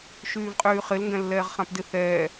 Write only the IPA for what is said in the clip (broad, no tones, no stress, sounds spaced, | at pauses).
ʃ yː v qʼ yː χ ɪ l ŋ ɡ ɛ̃ lː ɛː ʁ χ ã p d ɪ θ ɛː